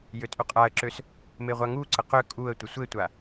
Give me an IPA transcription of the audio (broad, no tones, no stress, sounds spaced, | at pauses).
j ø tʼ u qʼ a ə̯ ǁ ø s | m e ʁʷ a ŋ u ǀ ə q ø kʼ u ə̯ tʷ ə sʷ e tʷ a